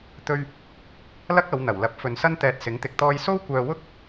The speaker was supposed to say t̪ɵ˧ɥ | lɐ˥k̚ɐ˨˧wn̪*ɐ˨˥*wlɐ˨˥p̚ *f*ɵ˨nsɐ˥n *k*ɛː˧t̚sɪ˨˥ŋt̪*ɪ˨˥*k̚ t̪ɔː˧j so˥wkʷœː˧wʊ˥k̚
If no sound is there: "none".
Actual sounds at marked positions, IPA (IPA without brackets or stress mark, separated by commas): ɐ˨˩, f, t̪, ɪ˧